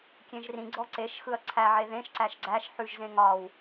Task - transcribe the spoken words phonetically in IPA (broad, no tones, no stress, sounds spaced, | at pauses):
kʲ ẽ ʒ r ĩ ɡ͡ǀ ɔ ǀ e ʃ x ɯ ɐ̯ ǀʰ æ ʕ e ð ẽ ʃ ǀ æ ʃ ɡ͡ǀ æ ʃ ħ ʉ ʒ z ẽ ŋ ɒ w